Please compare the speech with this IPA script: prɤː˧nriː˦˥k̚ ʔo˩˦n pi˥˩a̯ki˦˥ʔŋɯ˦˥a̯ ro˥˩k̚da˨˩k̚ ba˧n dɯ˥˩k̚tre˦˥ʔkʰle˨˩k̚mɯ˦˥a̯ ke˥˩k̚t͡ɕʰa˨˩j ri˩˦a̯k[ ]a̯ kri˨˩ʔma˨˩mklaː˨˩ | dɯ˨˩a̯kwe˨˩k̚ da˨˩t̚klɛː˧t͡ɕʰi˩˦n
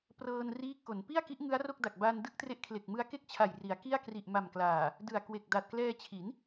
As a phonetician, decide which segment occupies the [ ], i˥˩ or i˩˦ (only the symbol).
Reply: i˥˩